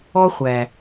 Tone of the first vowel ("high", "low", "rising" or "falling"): high